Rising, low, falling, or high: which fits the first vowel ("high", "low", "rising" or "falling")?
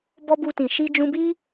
high